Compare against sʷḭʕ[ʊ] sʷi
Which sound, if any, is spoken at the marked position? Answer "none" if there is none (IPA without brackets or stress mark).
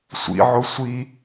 ʊ